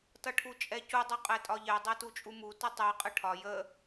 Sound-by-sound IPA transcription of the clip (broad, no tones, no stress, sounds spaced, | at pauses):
t ʌ ʈʰ u t͡ʃʼ ɛ c u dˤ u qʼ ɛ tʼ ɒ ʎ ɛ dˤ ɛ t u t͡ʃʼ u m u t ə tˤ ɛ qʼ ə ʈʰ ɒ j ə